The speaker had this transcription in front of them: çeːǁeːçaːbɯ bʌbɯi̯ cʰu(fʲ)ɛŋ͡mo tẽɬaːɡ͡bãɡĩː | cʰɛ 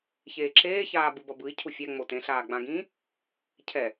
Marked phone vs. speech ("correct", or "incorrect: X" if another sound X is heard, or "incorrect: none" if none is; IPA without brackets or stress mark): correct